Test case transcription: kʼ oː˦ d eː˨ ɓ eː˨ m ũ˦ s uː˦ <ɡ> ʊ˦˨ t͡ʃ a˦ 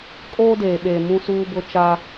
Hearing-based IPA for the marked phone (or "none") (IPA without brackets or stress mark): b